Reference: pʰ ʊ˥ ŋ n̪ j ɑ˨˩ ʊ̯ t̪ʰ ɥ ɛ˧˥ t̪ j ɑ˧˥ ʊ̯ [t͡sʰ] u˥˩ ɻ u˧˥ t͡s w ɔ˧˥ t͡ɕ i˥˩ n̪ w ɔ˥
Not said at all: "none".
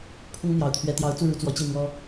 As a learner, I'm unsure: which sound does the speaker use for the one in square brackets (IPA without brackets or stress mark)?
t͡s